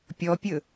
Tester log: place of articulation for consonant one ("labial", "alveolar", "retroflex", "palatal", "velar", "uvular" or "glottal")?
labial